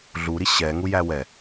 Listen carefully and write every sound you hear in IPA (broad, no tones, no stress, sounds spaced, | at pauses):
ɮ u ɾ i ɕ ɛ ŋ u j æ w ɛ